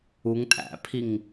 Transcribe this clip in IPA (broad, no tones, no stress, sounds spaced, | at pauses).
u ŋ tʼ æ̰ pʰ i ŋ